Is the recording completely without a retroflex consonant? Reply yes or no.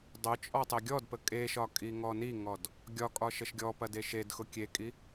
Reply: yes